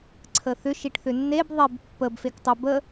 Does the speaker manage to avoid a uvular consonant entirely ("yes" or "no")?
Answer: yes